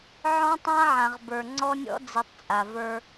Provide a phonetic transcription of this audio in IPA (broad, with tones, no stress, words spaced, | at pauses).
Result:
ʕɔ̃˦tˤã˦ʕã˨ʁbə˞˨ ŋ͡ǀɔ˦nʲɔ̰˦ d͡zi˨tˤt͡sʼa˨və˞˦